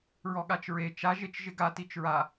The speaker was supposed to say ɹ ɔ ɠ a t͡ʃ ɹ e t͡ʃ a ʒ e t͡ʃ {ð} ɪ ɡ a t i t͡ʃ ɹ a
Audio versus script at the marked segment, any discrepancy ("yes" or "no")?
yes